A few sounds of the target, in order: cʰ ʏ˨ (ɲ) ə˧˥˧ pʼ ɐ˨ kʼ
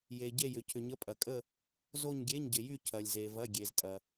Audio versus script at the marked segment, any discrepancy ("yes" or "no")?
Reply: no